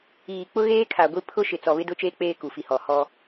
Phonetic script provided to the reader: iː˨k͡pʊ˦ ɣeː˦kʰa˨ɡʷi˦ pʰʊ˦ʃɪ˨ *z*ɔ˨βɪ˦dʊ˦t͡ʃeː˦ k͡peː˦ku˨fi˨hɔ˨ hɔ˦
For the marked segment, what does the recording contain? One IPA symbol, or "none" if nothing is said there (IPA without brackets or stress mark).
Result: t͡s